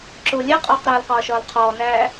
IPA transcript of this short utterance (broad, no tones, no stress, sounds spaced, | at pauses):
ǁ ʊ lʲ ɛ qʼ ɒː q ɾ ʌː l q ɒː ʃ ɒː l qʰ ɔː n æː